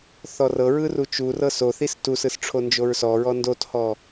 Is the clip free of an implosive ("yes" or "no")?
yes